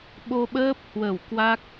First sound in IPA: ɓ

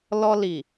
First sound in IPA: l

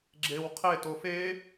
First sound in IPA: ɡ͡ǁ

